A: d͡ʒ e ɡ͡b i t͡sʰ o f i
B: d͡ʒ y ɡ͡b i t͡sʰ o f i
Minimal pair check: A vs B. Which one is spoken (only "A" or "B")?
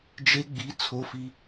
A